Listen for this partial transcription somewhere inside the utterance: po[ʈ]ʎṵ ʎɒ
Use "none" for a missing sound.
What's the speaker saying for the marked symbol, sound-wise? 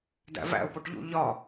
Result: ʈ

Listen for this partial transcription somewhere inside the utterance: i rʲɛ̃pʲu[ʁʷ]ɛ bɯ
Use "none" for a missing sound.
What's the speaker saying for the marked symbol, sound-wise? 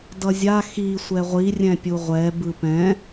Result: ʁʷ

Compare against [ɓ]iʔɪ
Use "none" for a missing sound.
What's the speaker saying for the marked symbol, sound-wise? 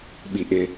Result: ɓ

